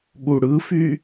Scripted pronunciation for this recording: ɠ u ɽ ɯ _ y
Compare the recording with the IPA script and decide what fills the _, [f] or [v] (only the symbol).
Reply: f